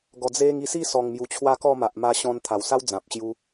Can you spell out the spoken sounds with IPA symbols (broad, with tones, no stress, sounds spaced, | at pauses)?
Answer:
ɡ ɔ˨˩ d͡z e˧ ŋ i˧ s i˥˧ s ɔ˨˩ ŋ m j u˨˩ t͡ɕʰ w a˧ k ɔ˥˧ m a˨ ʔ m a˧ ɕ ɔ̃˧ n t̪ʰ a˨˩ w s a˦ w d͡z ã˨ p̚ ɕ j u˧